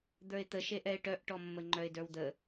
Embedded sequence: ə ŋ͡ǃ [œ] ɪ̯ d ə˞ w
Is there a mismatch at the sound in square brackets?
no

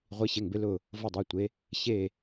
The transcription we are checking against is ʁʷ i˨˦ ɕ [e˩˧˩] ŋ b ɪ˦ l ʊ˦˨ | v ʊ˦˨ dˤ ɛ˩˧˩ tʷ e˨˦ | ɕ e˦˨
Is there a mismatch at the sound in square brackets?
no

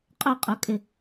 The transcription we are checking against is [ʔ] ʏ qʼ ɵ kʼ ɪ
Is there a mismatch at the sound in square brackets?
yes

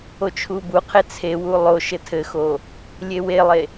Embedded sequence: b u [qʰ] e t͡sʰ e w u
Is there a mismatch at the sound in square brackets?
no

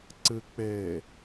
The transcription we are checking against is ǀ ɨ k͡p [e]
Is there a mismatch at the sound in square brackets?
no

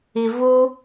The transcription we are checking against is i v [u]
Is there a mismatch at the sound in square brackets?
no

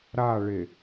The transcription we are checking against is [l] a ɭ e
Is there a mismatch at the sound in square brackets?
yes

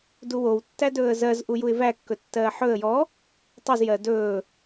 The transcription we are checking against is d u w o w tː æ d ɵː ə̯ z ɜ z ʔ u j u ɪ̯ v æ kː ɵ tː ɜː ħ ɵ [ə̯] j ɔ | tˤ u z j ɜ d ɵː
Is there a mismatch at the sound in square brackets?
no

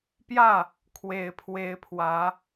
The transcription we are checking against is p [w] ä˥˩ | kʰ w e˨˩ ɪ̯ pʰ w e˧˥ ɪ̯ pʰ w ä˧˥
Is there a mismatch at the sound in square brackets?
yes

